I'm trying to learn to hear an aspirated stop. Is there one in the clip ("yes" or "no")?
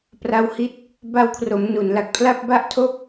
yes